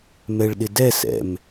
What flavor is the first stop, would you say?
implosive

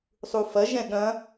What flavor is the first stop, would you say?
implosive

